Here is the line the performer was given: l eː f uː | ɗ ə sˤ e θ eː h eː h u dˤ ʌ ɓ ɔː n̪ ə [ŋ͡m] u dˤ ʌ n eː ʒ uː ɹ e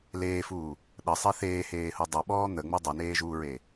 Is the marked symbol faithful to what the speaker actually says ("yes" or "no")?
yes